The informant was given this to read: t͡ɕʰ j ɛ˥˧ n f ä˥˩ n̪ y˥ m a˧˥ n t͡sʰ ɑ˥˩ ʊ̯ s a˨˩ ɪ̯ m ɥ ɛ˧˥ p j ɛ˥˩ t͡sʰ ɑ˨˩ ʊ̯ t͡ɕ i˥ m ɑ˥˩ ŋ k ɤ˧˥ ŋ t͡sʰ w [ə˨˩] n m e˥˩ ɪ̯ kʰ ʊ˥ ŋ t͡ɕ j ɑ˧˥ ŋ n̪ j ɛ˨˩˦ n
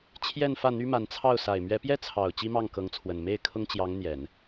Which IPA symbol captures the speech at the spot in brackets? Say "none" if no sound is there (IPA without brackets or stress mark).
ə˨˩